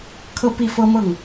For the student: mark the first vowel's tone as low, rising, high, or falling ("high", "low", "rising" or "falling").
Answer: falling